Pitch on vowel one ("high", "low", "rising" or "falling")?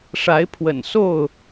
rising